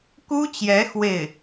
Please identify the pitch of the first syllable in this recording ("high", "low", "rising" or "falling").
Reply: high